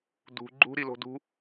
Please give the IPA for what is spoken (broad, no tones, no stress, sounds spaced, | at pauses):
d ṳ ɡ͡ǃ ṳ ɾ i l o̤ d ṳ